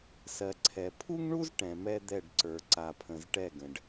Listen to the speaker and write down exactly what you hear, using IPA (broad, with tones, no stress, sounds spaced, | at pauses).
s ɜ˨ ǀʰ ɛ˨ pʰ u˦ ŋ ɳ u˦ z ʈ ɛ̃˨ m ɛ˦ d̪ ɛ˦˨ ɖ ǀ ə˞˨ ǀ a˨ pʰ ə̃˨ z ʈ ɛ˦˨ ɡ ə̃˨ ɖ